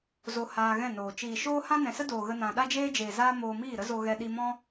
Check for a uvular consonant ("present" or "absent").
absent